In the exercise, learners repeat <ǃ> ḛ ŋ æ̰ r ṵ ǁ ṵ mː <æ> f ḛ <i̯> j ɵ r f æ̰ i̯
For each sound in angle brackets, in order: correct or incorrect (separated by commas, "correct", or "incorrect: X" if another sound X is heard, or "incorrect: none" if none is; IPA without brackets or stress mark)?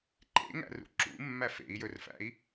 correct, correct, correct